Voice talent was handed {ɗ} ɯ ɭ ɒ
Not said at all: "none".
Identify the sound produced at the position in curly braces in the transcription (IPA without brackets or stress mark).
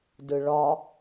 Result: d